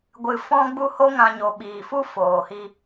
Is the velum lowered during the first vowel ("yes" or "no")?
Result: no